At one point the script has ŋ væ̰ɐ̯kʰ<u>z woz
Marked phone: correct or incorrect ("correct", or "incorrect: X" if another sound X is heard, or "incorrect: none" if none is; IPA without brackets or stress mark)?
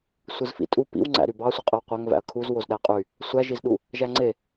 correct